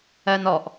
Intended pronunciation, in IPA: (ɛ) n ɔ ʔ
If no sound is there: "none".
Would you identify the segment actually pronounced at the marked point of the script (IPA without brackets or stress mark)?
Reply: ɜ